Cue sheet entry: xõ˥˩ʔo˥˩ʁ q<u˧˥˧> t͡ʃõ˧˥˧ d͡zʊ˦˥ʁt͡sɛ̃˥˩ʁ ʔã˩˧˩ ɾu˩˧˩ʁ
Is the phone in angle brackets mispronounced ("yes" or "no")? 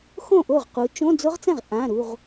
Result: yes